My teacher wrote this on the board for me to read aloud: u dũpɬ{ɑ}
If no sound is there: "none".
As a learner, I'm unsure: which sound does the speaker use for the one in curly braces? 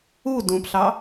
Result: ɑ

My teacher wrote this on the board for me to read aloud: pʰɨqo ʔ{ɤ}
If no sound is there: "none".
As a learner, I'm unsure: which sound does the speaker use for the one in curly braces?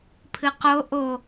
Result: o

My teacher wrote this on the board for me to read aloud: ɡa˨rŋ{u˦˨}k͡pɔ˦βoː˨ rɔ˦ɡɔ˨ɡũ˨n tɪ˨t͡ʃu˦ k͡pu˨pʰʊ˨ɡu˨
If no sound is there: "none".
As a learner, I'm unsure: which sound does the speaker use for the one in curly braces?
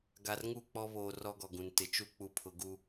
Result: u˦˨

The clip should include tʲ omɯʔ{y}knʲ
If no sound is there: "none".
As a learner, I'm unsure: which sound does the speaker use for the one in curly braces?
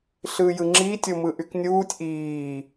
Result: y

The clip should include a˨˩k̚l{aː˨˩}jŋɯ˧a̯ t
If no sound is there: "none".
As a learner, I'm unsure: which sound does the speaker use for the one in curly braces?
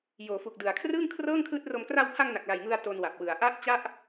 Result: a˨˩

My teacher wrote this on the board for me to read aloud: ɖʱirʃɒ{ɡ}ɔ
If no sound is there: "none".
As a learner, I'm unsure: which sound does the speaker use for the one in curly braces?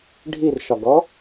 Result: ɡ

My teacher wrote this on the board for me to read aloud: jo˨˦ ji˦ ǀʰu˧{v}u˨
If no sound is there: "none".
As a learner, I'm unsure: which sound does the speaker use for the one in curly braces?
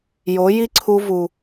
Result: v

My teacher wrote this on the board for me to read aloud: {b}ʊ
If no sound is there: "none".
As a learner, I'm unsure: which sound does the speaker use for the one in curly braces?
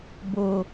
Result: b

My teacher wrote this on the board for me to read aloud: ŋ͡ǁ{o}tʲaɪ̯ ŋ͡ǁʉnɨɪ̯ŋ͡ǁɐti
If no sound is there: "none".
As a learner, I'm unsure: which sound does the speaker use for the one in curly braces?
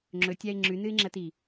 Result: ɵ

